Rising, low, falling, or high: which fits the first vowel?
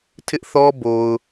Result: high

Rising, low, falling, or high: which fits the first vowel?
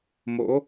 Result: rising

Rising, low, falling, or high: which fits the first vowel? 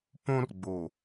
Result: high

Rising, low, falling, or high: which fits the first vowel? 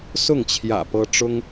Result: falling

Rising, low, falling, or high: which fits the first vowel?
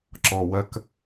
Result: low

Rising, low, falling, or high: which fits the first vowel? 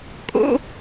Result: high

